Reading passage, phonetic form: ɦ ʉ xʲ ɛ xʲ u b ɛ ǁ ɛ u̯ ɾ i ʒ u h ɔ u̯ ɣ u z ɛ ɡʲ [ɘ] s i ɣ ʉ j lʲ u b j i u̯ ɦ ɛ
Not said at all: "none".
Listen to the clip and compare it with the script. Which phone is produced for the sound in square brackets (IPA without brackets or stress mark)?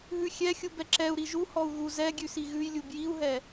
ʉ